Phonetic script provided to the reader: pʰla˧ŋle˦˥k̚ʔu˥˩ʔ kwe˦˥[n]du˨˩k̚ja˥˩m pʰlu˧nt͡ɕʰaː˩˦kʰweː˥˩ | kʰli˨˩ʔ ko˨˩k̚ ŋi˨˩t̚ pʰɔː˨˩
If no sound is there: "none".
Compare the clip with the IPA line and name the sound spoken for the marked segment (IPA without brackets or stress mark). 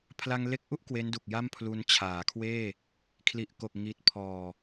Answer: n